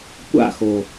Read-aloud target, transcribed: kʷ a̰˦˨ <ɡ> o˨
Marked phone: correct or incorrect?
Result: incorrect